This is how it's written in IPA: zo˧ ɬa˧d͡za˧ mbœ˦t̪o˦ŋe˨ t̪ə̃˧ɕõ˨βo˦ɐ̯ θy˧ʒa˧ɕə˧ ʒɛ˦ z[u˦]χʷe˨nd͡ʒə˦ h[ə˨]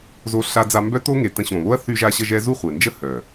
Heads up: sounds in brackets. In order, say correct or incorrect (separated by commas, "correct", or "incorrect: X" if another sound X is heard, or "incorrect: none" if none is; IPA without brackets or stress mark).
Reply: incorrect: u˦˨, incorrect: œ˨